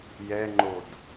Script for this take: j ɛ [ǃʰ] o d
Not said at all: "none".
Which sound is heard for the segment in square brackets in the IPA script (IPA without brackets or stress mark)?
ŋ͡ǃ